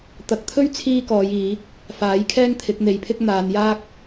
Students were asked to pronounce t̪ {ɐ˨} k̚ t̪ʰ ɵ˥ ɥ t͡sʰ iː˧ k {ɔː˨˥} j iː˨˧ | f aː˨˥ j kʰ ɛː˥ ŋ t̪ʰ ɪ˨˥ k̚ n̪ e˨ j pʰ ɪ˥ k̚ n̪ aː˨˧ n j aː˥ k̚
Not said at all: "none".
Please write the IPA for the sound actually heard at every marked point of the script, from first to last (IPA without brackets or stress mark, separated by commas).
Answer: ɐ˨, ɔː˨˧